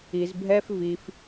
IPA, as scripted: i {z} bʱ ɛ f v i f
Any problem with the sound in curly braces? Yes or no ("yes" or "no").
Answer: no